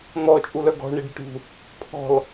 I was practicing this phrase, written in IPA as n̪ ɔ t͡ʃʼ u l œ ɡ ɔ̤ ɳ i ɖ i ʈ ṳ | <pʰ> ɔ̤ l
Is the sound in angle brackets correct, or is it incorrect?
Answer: correct